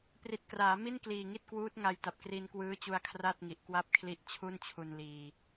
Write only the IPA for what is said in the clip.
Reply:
p r i˨˩ t̚ k r aː˩˦ m i˥˩ n k l iː˨˩ ŋ i˥˩ t̚ k w uː˦˥ t̚ ŋ a˧ j t a˨˩ p̚ k r i˧ n k w ɯː˦˥ t͡ɕ u˧ a̯ kʰ r a˥˩ t̚ ŋ i˨˩ ʔ k w a˥˩ p̚ kʰ l i˦˥ ʔ t͡ɕʰ u˥˩ n t͡ɕʰ u˧ n l iː˧

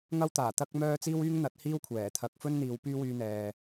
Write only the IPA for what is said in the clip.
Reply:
ŋ ɐ˥ w t̪ aː˨˩ t̪ ɐ˥ k̚ m œː˥ t͡s iː˥ w yː˥ ŋ n̪ ɐ˨˥ t̚ h iː˥ w kʷʰ ɛː˨˩ t̪ʰ ɐ˨˥ k̚ f ɵ˥ n n̪ iː˨˧ w p yː˥ w yː˧ n̪ ɛː˨

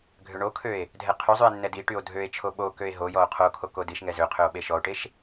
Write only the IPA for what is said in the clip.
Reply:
ɡʱ ø ɳ o kʰ ø e̯ | dʱ ɛ qʰ y zˤ y e̯ nː ɛ d i ʈ y o̯ dʱ ø e̯ t͡ʃʰ o ɓ o k ø e̯ ɦ o j ɔ o̯ qʰ o kʰ o k o d i ʃ ŋ ɛ z ø qʰ ø o̯ ɓ e ʃ ɔ o̯ ʈ e ʃ

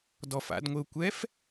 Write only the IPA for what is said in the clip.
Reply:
d ɔ f a̰ d ŋʷ ɪ ʊ̯ kʷ ɛ f

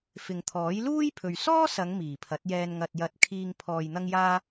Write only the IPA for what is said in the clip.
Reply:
f ɪ˨ ŋ t̪ʰ ɔː˨˥ j l uː˥ j pʰ ɵ˨ ɥ s ɔː˥ s ɐ˨˧ ŋ m iː˨˩ pʰ ɐ˨˥ t̚ j ɛː˧ n ŋ ɐ˨ t̚ j ɐ˨˥ t̚ kʰ iː˧ ŋ pʰ ɔː˨ j n̪ ɐ˧ ŋ j aː˧

